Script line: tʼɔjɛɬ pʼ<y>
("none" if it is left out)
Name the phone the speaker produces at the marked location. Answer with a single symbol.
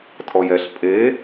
e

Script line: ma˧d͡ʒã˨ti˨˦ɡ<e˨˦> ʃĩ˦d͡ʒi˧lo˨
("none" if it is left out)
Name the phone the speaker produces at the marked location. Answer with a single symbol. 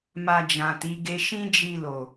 e˦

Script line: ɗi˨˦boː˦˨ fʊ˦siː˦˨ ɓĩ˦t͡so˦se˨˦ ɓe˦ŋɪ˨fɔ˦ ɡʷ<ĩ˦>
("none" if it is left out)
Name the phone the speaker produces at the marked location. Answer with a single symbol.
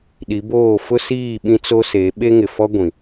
ĩ˨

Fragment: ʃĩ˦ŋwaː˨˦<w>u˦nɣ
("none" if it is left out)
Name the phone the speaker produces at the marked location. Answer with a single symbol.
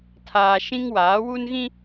w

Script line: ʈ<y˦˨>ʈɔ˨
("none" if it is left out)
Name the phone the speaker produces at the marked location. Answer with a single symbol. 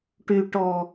y˨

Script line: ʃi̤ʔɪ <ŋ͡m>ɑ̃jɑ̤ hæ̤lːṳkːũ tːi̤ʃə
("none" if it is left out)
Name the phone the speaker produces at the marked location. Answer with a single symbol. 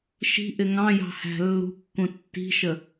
ŋ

